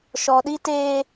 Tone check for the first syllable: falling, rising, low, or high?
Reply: low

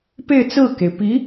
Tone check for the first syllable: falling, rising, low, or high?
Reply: falling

